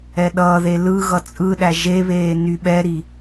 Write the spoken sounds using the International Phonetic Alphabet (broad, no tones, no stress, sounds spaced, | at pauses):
ɛ ɗ ʌː ð e l ɯ ɣ ʌ t͡sʼ ɯ ɗ æ ʒ e β eː n y ɓ ɛ ɾ i